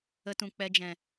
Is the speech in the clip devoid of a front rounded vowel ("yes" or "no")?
yes